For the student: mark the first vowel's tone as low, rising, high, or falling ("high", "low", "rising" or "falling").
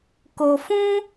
low